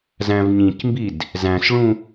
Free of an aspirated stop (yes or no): yes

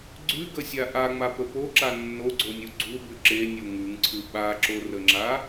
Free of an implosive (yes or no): no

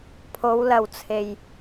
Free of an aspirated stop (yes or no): no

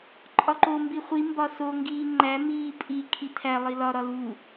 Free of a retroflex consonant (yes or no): yes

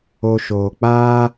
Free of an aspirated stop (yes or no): yes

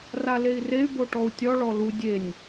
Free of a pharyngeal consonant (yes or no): yes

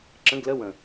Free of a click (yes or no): no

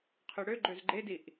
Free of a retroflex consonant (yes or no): no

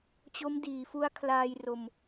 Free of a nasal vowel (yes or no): yes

